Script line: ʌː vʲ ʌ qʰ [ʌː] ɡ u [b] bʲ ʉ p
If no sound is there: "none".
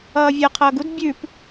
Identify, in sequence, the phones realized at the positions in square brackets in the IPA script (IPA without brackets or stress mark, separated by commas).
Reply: ʌː, d